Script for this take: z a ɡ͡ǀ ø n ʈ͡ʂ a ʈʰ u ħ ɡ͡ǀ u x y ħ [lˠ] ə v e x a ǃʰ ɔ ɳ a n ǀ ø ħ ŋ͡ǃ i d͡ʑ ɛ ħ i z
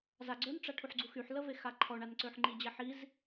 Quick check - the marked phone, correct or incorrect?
incorrect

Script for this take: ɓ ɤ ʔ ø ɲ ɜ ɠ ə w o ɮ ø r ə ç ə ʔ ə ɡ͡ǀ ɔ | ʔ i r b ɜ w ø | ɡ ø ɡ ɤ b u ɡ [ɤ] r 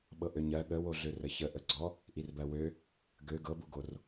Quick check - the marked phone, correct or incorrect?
incorrect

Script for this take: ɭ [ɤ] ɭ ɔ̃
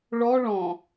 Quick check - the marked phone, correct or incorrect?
incorrect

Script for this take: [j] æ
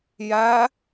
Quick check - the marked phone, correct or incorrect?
correct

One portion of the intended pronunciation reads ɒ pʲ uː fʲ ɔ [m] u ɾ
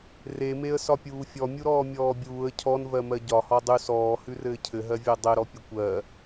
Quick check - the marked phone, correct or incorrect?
incorrect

